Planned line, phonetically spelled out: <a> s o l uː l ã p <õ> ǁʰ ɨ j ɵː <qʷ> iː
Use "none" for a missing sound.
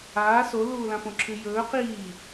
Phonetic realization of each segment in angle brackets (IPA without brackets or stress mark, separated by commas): aː, õ, q